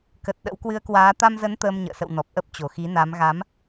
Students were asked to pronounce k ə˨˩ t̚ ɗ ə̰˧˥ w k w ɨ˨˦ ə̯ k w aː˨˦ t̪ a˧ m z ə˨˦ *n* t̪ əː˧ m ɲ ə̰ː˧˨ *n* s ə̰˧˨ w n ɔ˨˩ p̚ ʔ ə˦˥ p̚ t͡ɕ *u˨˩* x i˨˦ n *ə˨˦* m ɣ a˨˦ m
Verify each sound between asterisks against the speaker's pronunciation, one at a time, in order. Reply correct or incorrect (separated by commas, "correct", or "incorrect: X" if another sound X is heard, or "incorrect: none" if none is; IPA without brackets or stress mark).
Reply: correct, incorrect: none, incorrect: o˨˩, incorrect: a˨˦